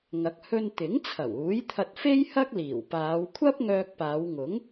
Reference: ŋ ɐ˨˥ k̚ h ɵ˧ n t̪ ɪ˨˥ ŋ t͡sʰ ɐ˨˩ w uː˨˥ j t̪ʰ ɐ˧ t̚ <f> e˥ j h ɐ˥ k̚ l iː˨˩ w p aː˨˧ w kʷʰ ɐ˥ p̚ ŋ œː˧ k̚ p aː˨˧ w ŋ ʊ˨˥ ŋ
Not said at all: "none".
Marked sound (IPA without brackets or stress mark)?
f